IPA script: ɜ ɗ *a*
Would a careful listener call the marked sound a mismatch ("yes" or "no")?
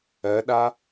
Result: no